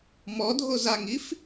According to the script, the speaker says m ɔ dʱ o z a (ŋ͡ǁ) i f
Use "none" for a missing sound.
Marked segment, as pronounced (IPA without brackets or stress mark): ŋ